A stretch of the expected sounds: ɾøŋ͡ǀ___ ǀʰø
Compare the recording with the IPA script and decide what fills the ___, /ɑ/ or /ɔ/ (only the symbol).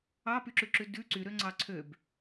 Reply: ɑ